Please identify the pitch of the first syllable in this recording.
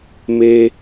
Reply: high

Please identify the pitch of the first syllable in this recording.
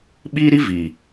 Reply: high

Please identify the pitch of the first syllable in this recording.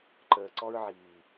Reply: low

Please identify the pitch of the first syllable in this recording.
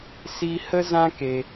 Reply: high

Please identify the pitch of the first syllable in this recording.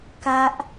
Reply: high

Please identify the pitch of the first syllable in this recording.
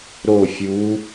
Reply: falling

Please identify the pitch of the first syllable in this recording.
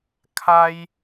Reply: high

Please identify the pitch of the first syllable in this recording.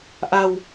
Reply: low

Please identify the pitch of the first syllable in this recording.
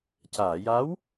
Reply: low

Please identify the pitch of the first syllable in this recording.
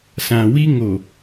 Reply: low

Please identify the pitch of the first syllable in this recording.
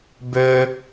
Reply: low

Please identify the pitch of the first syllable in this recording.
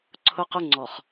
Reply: high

